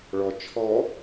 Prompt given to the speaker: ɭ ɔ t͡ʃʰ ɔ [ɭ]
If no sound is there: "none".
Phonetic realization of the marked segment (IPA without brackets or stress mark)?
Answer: none